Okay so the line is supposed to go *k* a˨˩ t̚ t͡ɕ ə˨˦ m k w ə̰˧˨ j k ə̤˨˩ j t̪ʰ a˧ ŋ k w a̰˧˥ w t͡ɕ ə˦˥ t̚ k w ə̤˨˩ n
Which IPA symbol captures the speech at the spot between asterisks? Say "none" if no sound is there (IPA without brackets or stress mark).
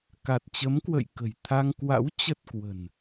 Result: k